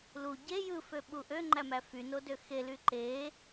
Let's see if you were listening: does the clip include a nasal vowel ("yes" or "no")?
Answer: no